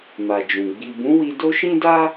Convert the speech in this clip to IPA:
ma˨d͡ʒũ˨ ɡ͡bi˨bũ˨˦wi˧ do˦ʃĩ˦da˦

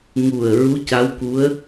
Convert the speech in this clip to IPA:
ŋu˨˩ə̯ ɹu˧˥ca˧˥wku˧˥ə̯

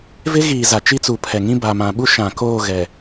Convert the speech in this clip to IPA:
vɪ˦ɣiː˨ za˨t͡ʃi˦t͡su˨ pʰɛ˨ŋĩ˦ ba˨mã˨ ɓu˦ʃã˨ koː˦˨ɣɛ˨

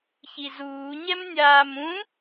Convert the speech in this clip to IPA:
çizuːɲɛm nʲaːmũ

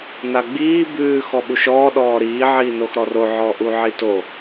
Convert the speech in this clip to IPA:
naɡ͡biː bʉː xɔɓuʃɔː ɗɔːɾiː ʕiːnoxɾɔro ʕɔʔuʕito

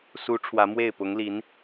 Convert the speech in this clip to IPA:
su˧˥ ʈ͡ʂʰwä˧˥mwe˥˩ɪ̯ pʊ˧˥ŋli˧˥n

